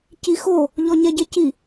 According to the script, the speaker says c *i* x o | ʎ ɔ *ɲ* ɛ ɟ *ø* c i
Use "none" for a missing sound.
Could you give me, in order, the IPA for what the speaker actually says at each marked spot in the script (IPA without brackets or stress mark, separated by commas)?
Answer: i, ɲ, e